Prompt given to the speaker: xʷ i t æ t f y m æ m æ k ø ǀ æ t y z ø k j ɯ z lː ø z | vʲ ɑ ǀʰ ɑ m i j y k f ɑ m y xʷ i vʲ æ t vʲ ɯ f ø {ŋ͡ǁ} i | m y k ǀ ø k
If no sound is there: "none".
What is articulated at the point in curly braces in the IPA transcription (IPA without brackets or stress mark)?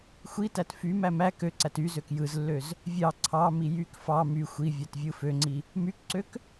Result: ŋ͡ǀ